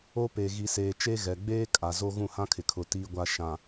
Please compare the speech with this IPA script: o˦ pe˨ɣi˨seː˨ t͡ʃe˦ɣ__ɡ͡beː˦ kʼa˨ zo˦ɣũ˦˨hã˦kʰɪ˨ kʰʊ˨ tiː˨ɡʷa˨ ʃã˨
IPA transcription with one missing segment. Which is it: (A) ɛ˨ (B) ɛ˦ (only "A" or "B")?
A